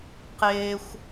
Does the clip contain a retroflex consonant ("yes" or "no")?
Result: no